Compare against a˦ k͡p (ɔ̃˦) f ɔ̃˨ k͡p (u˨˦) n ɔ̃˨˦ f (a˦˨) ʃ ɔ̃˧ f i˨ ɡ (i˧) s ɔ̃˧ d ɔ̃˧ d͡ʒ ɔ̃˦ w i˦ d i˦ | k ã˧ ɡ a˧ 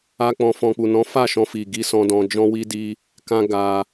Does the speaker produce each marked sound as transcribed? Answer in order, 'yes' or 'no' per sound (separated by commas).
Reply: no, no, yes, yes